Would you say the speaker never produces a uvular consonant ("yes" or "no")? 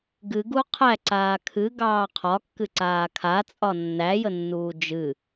no